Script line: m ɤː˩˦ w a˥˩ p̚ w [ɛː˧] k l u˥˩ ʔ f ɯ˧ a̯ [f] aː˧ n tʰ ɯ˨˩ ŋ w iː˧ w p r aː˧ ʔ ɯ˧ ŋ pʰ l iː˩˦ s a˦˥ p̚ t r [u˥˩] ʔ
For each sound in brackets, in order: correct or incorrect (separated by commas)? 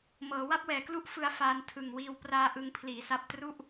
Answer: incorrect, correct, correct